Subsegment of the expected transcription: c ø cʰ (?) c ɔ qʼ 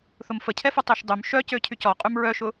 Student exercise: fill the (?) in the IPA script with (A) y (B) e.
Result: A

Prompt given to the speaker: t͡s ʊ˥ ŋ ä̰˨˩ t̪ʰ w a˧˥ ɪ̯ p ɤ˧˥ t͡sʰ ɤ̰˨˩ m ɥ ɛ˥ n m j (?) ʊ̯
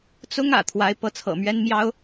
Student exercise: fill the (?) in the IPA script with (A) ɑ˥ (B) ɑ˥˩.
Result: A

